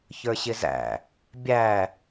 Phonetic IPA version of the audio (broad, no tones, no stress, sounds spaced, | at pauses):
ç ə˞ ɕ ɪ z æ̰ | bʲ æ